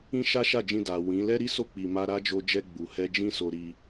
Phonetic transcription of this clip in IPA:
ĩ˦ ʃ a˦ ʃ a˦˨ d͡ʒ ĩ˧ d a˨ w ĩ˨˦ l ɛ˦ ɾ i˦ s o˦˨ k͡p i˨ m a˧ ɾ a˦ d͡ʒ o˧ d͡ʒ ɛ˧ ɡ͡b u˨ h ɛ˧ d͡ʒ ĩ˦ s o˧ ɾ i˧

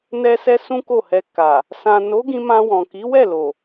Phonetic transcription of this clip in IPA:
n ɛ˦ s ɛ˦ s ũ˦ k o˦˨ h ɛ˧ k a˨ | s ã˨ n o˨˦ ɡ ĩ˧ m ã˧ w ɔ̃˨ k i˨˦ w ɛ˦˨ l o˨

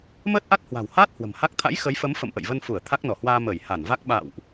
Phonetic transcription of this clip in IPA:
m əː˦˥ t̚ ʔ a˦˥ t̚ h w a̤˨˩ w h aː˦˥ t̚ h w ə̤˨˩ m h a˦˥ k̚ t̪ʰ a̰˧˥ j x ə˨˦ j f ə˨˦ m f ə̰˧˨ m ʔ ə̰˧˨ j v ə˧ n f u˧˩ ə̯ t̪ʰ a˦˥ k̚ n ɔ˧˩ h w aː˧ m əː˧˩ j h a˧˩ n v a˦˥ k̚ ɓ a̰˧˨ w ʔ

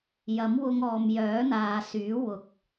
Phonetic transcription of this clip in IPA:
j ɐ˨˥ m w ʊ˧ ŋ ɔː˨ m j œː˨˥ n̪ aː˨ s yː˨˥ w ʊ˨˥ k̚

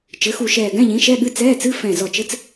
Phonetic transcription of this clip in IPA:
t͡ʃ ɘ˩˥ x u˧˩ ʃ ɛː˧˩ ɡ ɛ̃˧˥˧ ʎ ĩ˩˥ ʃ ɛ˧˥˧ ɠ ɨ˧˥˧ t͡s ɛː˧˥˧ t͡s ɨ˧˥˧ f ɛ̃˧˩ z ɔ˧˩ t͡ʃ ɘ˧˥˧ t͡s

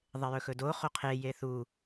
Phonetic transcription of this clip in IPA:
ðˤ e j ɵ x ɵ d o χ o qʰ e j e θ u

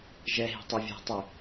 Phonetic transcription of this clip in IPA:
ʒ ɛ ɦ i̤ tˤ ɛ vʲ ɛ̤ tˤ y

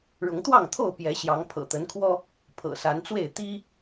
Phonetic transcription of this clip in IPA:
ɻ ʊ˨˦ ŋ t̪ w ɑ˥˨ ŋ t̪ʰ o˥˨ ʊ̯ p j ɛ˨˦ ɕ j ɑ˨˦ ŋ pʰ ɤ̰˨˩ t̪ ə˨˦ n kʰ w ɔ˦ | pʰ ɤ̰˨˩ s a˨˦ n t͡s w e˥˨ ɪ̯ t̪ i˦

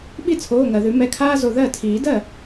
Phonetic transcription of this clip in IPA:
ɓ i˥˩ t͡sʰ oː˩˧˩ ŋ ɜ˩ ð ʉ˨˩˦ m ɛ˩˧˩ kʰ aː˥ z o˩˧˩ ð ɜ˥˩ tʰ iː˨˩˦ d ɜ˥˩

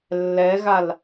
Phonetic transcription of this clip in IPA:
lː ɛ ɣ a l

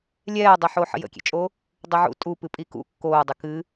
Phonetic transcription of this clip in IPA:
lʲ ɛː dˤ ɪ ħ o ħ ə̰ j ə̰ kʲ ḛ t͡ʃʼ o | dˤ i ʕ ṵ tʼ u p ɨ pʼ i k ṵ kː oː dˤ ɪ k ɨ

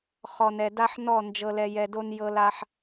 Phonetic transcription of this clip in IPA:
χ ɔ˨ n ɛ˨ d a˦ ħ n ɔ˦˨ n d͡ʒ ɤ˨ l ɛ˨ j ɛ˨ d o˦ n j ɤ˦ l a˦ ħ

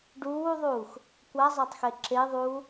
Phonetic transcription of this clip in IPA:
ɖ uː ðˤ uː x | kʷ a zˤ a tˤ x e ǁ e ðˤ uː

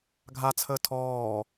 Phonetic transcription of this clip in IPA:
ɡʱ a t͡sʰ əː tʰ ɔː

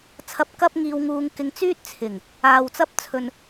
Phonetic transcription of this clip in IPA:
t͡sʰ ɐ˨˥ p̚ k ɐ˧ p̚ ŋ iː˨ w ŋ uː˨ ŋ k ɪ˨ ŋ t͡s yː˧ t̚ t͡sʰ ɪ˨˩ ŋ | aː˨ w t͡s ɐ˧ p̚ t͡sʰ ɵ˨ n

